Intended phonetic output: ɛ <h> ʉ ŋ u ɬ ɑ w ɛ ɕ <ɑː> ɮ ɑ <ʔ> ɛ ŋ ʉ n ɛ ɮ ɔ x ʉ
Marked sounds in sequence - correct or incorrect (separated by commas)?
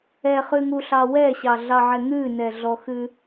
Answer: incorrect, incorrect, incorrect